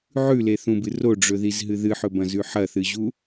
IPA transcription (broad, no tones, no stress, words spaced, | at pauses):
ʕʉleθũbɨ roɖ͡ʐɵðizɦɨ ðɨħɵbɐ̃zʉ ħɐθɨʑu